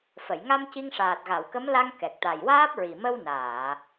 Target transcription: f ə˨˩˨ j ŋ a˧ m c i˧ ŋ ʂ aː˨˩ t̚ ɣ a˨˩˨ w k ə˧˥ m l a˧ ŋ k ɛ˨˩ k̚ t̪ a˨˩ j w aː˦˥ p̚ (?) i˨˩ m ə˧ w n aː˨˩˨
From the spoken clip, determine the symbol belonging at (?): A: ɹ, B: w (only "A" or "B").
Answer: A